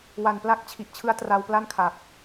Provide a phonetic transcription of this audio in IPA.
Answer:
w a˨˩ n p l a˥˩ k̚ t͡ɕʰ i˨˩ ʔ t͡ɕʰ ɯ˦˥ a̯ t r a˧ w p l a˥˩ n kʰ a˨˩ k̚

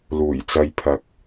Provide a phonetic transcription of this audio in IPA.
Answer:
l uː˨˩ j t͡s ɐ˧ j pʰ ɐ˧ k̚

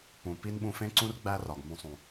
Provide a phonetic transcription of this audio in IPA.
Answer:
p ũ˩ p i˥ n ɓ ũ˧ f ẽ˥ ǀ ũ˥ r ɡ͡b æ˥ r ɒ˩ ɡ m ũ˧ sˤ ũ˩

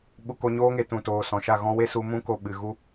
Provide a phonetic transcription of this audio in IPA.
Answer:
ɓ u˧ k o˧ ɲ oː˦ ŋ e˧ t ũ˨ t oː˨ s ɔ̃˨ ʃ a˦˨ ɣ ɔ̃˦ w e˦ s u˧ m ũ˦ k o˧ ɓ ɨ˨ ɣ u˦

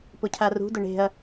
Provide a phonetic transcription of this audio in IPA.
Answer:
p ʊ cʰ a r ṳ d ʊ ɳ e̤ ɐ̯

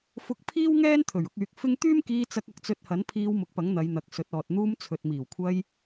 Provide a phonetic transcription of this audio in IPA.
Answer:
f ʊ˧ k̚ pʰ iː˥ w ŋ ɛː˥ n t̪ʰ ɵ˨˩ ɥ ʊ˧ k̚ yː˨˥ k̚ f ɪ˥ ŋ t̪ yː˥ m k iː˧ t͡s ɐ˧ k̚ ɐ˧ k̚ t͡s ɵ˧ t̚ h ɐ˨˥ n pʰ iː˧ w m ʊ˨˥ k̚ p ɐ˨˥ ŋ n̪ ɐ˨˧ j n̪ ɐ˨ k̚ s ɵ˨˥ t̚ ɔː˨ t̚ n̪ uː˧ m t͡sʰ ɵ˨ t̚ m iː˨˩ w kʷʰ ɐ˧ j

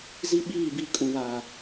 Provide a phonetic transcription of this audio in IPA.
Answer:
z i˦ ɓ iː˦˨ b i˦˨ kʼ ũ˨ β aː˨

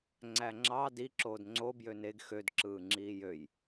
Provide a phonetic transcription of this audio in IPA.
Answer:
ŋ͡ǀ æ ŋ͡ǁ ɑ d i ǁ oː d ŋ͡ǀ o b j ø n e ɡ x ø d ǁ ɯː ŋ͡ǁ iː j ø j

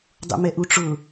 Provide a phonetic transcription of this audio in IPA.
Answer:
dˤ ṵ m ɛ ʔ u ʈ͡ʂ ʊ

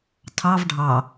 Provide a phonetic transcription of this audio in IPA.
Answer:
tʰ ɑ v ɖʱ ɑ

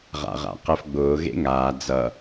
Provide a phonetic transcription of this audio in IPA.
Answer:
ʁ a̰ ʁ a̰ q ɛ f ɡ͡b ʊː ɣ ḛ ŋ aː d͡z ʌ

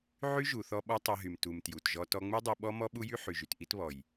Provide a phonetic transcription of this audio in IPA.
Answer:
ʕ y˦ ʒ u˨ θ ɔ˧ ɓ ɔ˦ tˤ i˧ ɦ y˨ m t u˨ m t j u˨ t ʒ ɔ˧ t ɔ˧ ŋ͡m u˦ dˤ u˧ ɓ ɔ˦ m ɔ˦ ɓ u˦ j y˦ ħ y˨ ʒ y˨ t ʔ i˦ t β ɔ˨ j

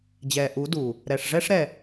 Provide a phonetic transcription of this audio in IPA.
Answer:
d͡ʑ ɛː˨ ʔ u˨˦ d u˨ | ɾ ɛ˨ ʂ ʐ ɛ˦ ʂ ɾ ɛ˨

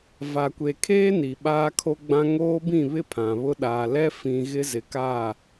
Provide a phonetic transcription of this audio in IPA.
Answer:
v a˨ kʷ e˨ kʰ eː˦ n i˨ ɓ aː˦ kʰ o˦ ɡ͡b ã˦ ŋ oː˦ b ĩ˦˨ β ɪ˦ pʰ ã˨ β ʊ˦ ɗ aː˨ l ɛ˦ f ĩ˨ ɣ ɪ˦ z ɪ˨ k a˦˨

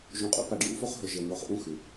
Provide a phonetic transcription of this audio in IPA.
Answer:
ʒ ũ˨ qʼ ṵ˦ p a˨ ɖ j ṵ˦ f o˦ χ ɦ ɵ˨ ʒ e˨ n̪ o˨˦ χ ʔ ũ˦ x ʉ˨

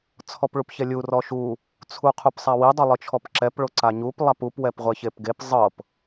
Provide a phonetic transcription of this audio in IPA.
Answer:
t͡sʰ ɔ p ɭ u p ç ɛ lʲ u r ɔ ʃ u | t͡sʰ u qʰ u p sˤ a w i dˤ o lˠ ɯ t͡ʃʰ ɔ p ǁ ɛ p ɭ o ǀ a ɲ u p lˠ a p u p w ɛ p ʁʷ ɛ ç e p ɡ e p zˤ ɤ p

